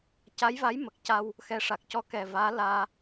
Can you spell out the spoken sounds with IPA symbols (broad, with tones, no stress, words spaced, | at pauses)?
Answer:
ca˧˥jva˧˥j mə˨˩k̚ca˧w | xɛ˧˥ʂa˨˩k̚ cɔ˧kɛ˨˩vaː˧˥ laː˧